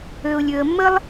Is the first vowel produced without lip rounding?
no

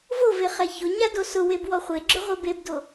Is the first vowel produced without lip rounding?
no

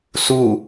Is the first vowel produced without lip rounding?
no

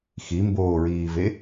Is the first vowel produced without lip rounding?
yes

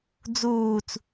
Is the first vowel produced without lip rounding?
no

